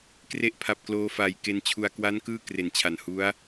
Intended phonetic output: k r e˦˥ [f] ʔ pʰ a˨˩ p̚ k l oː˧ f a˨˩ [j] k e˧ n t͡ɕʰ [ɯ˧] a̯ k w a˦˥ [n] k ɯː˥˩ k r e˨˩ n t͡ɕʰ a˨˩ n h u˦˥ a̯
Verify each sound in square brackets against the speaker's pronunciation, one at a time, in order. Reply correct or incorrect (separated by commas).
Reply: incorrect, correct, incorrect, correct